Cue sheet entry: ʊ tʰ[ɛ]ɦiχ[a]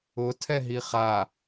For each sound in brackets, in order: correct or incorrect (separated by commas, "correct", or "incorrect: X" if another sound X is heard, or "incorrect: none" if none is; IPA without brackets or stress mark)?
correct, correct